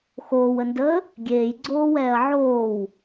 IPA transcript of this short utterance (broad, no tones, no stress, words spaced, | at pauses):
xoːwəndəː | ɡʲeːjɡ͡ǀoːwɛːɐ̯ ʕoːw